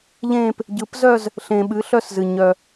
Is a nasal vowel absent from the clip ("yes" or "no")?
no